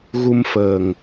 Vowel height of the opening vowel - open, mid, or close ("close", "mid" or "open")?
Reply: close